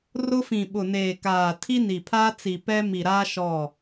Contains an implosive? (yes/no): yes